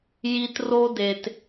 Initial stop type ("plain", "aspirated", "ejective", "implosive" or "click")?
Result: plain